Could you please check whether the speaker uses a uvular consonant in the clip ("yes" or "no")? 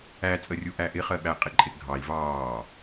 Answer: yes